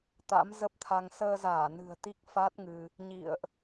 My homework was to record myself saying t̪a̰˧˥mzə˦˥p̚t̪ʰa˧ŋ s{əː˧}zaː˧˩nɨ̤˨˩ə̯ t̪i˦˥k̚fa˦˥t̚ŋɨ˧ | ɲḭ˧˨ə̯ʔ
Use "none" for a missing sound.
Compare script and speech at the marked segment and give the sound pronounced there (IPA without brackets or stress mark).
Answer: əː˧